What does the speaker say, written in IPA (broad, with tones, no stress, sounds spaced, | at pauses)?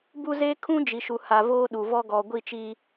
b u˦ z eː˦ kʰ ũ˦ d͡ʒ i˨ ʃ u˨ h a˨ v oː˦ ɗ u˨ v ɔ˦ ɡ ɔ˨ ɡʷ i˦˨ t͡ʃ i˦